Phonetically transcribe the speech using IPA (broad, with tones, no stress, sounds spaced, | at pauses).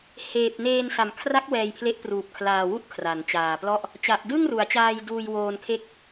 h eː˨˩ p̚ n eː˧ n s a˨˩ m kʰ r a˦˥ k̚ w ɛː˧ j pʰ l e˦˥ ʔ p r uː˨˩ p̚ kʰ l aː˨˩ w u˥˩ ʔ kʰ r a˩˦ n t͡ɕ aː˨˩ p l ɔ˥˩ ʔ | t͡ɕ a˨˩ ʔ d ɯ˥˩ ŋ r u˩˦ a̯ t͡ɕ aː˧ j d uː˧ j w oː˧ n kʰ e˥˩ k̚